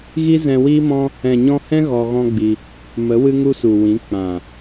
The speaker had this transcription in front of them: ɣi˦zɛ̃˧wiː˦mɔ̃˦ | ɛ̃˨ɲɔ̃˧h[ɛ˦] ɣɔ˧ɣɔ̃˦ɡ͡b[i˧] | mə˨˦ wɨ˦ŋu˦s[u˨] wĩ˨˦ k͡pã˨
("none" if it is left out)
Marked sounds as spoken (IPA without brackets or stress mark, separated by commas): ɛ̃˦, i˧, u˨